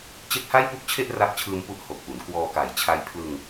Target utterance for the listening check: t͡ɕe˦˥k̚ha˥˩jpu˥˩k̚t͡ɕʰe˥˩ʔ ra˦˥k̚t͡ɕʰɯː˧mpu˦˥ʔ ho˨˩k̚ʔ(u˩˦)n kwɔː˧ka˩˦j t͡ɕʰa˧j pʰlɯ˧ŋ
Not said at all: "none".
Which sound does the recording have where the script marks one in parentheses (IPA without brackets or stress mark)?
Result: u˩˦